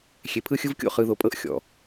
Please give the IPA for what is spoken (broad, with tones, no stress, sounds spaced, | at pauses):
xʲ e˨ pʰ ɯ˦ xʲ ɯ˦ v kʲ o̰˦˨ χ ɯ˨ ð o˨ pʼ ɤ˦ ʔ xʲ ɔ̰˨